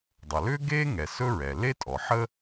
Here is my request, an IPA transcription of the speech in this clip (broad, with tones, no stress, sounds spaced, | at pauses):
dˤ ʌ˩ l ʏː˥ ɡ eː˥ ŋ ɛ˩ s ɵ˥ ɹ ɛ˩ l e˥ tʼ ɔ˩ ħ ə˥